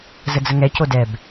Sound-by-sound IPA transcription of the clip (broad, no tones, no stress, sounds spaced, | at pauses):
z ə d͡z ə ŋ ɛ c o d ɛ b